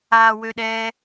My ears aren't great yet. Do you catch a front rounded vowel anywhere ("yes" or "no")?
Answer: yes